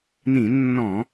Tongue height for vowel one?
high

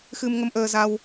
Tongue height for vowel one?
high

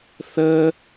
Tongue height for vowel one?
mid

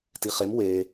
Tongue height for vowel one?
high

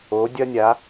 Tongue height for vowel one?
mid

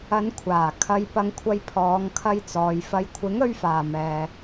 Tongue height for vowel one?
low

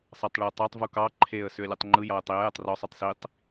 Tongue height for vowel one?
low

